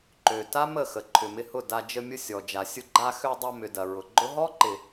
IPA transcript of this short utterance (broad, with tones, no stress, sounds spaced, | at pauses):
ǃ ø˨ t a˦ m ə˦˨ x ə˨ ǃʰ ʏ˨ m ɪ˧ h ʊ˦˨ d a˧ d͡ʒ ə˧ mʲ ʊ˧ sʲ ɔ˨ d͡ʒ a˨ sʲ ʊ˧ ɡ͡ǃ a˧ x ø˧ dˤ ɐ˧ m ʏ˨ d ɐ˨ ɹ ʊ˨ ɡ͡ǃ ʊ˦ ɦ ɔ˦ ǃ ɪ˨